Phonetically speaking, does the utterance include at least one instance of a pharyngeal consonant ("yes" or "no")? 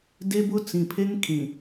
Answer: no